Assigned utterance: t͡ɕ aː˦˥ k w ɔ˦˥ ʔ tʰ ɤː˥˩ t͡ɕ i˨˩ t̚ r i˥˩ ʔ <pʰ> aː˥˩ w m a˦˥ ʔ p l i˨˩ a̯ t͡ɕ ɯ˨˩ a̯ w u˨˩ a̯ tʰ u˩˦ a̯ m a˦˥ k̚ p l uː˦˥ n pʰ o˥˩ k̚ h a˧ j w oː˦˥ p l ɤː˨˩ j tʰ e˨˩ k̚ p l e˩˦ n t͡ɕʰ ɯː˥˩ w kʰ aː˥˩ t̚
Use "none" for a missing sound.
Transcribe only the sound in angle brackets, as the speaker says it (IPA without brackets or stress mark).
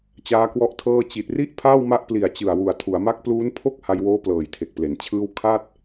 pʰ